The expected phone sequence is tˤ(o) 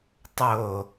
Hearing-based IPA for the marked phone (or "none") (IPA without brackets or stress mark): o